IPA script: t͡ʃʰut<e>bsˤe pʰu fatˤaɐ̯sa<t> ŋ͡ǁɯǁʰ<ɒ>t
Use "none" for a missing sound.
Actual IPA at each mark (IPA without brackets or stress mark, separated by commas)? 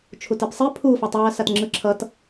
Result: e, t, ʌ